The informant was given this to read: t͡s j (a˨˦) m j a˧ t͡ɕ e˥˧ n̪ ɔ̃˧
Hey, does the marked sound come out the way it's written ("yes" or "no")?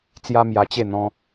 no